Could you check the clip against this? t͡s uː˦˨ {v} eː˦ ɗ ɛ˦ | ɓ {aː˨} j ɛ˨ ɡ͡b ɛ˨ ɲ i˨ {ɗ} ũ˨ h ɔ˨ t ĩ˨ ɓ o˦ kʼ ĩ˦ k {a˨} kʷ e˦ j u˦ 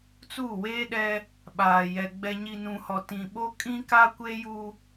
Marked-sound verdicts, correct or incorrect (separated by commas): incorrect, correct, incorrect, incorrect